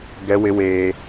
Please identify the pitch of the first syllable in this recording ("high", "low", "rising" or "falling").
high